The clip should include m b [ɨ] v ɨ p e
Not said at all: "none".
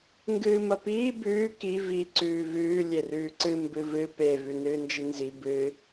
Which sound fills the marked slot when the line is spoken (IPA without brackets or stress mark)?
ɨ